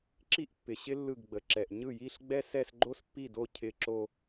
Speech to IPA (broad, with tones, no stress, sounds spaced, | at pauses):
ǁ i˥ ʔ pː ɪ˨ ɕ ɪ˥ lː ɯ˥˩ ɡ ɡ͡b ə˨ ǁ ɛ˨ ʔ ɲ ɯ˥˩ j i˥˧ ɬ ɡ͡b ɛ˥ s ɛ˥˧ s ɡ͡ǃ o˥ s pː i˥˩ d o˥˩ cʰ ɪ˥˧ ǁ o˥˧